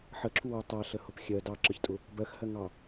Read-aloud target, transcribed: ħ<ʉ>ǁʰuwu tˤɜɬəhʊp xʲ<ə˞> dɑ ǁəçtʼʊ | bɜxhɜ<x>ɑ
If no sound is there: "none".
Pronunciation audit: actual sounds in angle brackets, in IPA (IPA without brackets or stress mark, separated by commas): ə, ɜ, ŋ